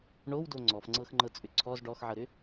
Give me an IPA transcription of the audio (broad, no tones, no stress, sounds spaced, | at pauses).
ɳ o w d o ŋ͡ǀ ɔ f ŋ͡ǀ ɤ x ŋ͡ǃ ɤ t͡sʼ ʏ ǀʰ ɔ z ɖ ɔ x ʕ ɤ ɾ ʏ